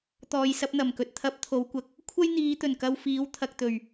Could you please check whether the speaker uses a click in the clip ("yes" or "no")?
no